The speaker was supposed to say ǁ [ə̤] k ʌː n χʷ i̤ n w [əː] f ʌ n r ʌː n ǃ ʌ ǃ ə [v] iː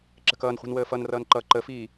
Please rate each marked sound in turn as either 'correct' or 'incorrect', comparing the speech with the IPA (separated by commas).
correct, correct, incorrect